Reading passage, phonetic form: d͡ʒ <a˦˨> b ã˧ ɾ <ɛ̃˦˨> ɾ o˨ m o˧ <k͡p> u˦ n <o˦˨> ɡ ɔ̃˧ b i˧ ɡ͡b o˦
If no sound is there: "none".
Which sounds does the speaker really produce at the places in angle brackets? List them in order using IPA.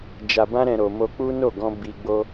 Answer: a˨, ɛ̃˨, k͡p, o˦˨

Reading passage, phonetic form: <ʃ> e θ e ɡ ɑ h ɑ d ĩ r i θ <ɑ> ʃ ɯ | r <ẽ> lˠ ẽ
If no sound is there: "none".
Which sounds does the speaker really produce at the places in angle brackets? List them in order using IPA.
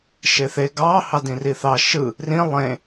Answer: ʃ, ɑ, ĩ

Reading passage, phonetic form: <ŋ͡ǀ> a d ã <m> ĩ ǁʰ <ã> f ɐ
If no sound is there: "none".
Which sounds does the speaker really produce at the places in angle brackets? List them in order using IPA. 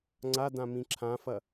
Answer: ŋ͡ǀ, m, ã

